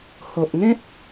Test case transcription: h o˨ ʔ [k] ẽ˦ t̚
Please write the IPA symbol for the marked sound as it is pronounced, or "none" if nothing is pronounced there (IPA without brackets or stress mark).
ŋ